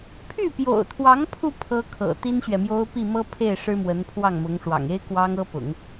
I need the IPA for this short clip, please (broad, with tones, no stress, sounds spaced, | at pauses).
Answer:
pʰ y˥˩ p j o̰˨˩ ʊ̯ t̪ʰ w ɑ˧˥ ŋ pʰ u˧ pʰ ɤ˥ kʰ ɤ̰˨˩ t̪ i˥ n ɕ ɥ ɛ˨ m j o˥ ʊ̯ p i˥˩ m ɤ˥ pʰ e˥˩ ɪ̯ ʂ ɻ̩˥ m w ə˧˥ n pʰ w ɑ˥˩ ŋ m ʊ˧˥ ŋ ʂ w ɑ̰˨˩ ŋ e˥ ɪ̯ k w ɑ˥ ŋ ɤ˥ p ʊ̰˨˩˦ ŋ